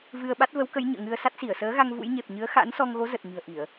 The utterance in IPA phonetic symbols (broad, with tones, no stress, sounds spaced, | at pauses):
v ɨ˧ ə̯ ɓ a˦˥ t̚ v ə˨˦ w k ə˨˦ j ɲ ə̰ː˧˨ ŋ ɨ˧ ə̯ s a˦˥ t̚ s i˧˩ ə̯ s əː˨˦ ɣ a˧ ŋ v ṵ˧˥ j ɲ e˨˩ p̚ ɲ ɨ˨˦ ə̯ x a̰˧˥ n s ɔ˧ ŋ ɣ o˨˦ z ə˨˩ t̚ ɲ ɨ̤˨˩ ə̯ ʔ i˧˩˨ ə̯